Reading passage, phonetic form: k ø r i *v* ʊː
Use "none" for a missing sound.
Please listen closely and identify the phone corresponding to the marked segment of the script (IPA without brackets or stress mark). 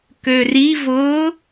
v